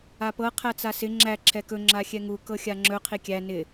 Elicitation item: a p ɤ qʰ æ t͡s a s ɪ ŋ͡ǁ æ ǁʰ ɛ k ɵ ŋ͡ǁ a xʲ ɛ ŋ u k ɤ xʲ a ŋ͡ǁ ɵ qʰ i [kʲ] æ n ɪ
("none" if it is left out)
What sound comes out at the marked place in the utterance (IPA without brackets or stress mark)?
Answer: kʲ